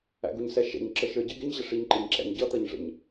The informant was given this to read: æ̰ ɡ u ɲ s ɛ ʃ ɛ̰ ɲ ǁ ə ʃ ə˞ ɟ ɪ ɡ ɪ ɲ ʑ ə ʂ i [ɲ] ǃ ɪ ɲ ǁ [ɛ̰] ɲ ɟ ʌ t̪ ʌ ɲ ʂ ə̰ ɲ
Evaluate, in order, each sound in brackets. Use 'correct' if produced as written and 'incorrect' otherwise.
correct, incorrect

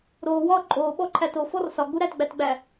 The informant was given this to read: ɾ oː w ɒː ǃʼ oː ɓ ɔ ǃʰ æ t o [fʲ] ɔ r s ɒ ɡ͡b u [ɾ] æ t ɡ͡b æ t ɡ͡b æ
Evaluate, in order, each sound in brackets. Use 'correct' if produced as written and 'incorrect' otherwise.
incorrect, correct

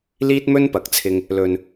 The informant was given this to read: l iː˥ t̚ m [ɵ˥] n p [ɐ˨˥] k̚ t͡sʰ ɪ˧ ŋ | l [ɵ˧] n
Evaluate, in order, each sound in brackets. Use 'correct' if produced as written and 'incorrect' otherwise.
correct, correct, correct

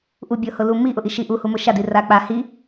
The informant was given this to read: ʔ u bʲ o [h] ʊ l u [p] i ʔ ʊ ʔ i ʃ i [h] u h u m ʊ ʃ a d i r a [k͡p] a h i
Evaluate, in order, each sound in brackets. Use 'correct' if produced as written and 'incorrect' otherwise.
correct, incorrect, incorrect, correct

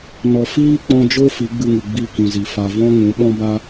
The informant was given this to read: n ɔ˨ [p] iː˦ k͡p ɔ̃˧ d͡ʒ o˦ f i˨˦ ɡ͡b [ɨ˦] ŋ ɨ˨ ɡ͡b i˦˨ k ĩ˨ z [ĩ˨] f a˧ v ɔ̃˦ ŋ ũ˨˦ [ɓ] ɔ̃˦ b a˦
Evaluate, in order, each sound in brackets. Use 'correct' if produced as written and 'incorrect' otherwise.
incorrect, incorrect, incorrect, correct

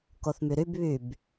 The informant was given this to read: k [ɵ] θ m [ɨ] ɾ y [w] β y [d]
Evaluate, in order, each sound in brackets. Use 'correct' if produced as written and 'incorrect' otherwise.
incorrect, incorrect, incorrect, incorrect

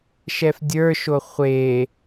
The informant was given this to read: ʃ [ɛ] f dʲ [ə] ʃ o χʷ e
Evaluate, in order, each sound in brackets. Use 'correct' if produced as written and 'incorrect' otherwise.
correct, incorrect

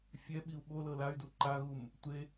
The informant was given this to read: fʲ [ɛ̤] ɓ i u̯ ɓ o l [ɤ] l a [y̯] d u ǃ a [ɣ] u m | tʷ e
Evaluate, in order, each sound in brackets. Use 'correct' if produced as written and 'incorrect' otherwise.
incorrect, correct, correct, correct

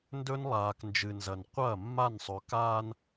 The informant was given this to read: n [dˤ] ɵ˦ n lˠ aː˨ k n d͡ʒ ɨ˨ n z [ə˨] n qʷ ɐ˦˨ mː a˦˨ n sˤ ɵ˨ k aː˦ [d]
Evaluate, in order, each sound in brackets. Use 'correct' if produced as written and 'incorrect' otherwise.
incorrect, incorrect, incorrect

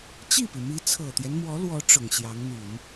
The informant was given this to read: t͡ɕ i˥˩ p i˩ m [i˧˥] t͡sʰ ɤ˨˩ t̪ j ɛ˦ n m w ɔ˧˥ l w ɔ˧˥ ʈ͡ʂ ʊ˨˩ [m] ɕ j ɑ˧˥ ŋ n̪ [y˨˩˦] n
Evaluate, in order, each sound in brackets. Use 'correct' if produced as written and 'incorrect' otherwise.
correct, incorrect, correct

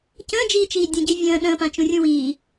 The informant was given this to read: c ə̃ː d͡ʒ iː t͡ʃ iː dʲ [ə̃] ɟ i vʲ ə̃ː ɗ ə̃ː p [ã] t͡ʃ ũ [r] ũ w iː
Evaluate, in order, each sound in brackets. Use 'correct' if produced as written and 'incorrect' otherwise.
correct, correct, incorrect

